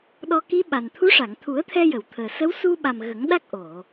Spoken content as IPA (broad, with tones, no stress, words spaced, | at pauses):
ɗɔ˧ki˧˥ ɓa˨˩nt̪ʰu˧˥ ʂa˨˩˨ŋt̪ʰu˨˩˦ə̯t̪ʰɛ˧jə˨˩˨w t̪ʰəː˨˩sə˧˥w su˧ɓa˨˩m ɣə˨˩˦ŋɗa˦˥k̚ʔo˨˩˨